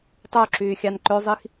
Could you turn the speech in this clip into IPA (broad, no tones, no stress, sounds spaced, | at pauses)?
tˤ ø ǁ yː xʲ ɑ n ǃ ø zˤ i x